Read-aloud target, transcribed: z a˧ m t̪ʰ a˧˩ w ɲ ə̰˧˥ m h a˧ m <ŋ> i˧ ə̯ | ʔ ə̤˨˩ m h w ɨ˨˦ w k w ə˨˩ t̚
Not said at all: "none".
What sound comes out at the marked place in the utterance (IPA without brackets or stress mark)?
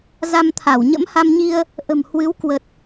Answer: ɲ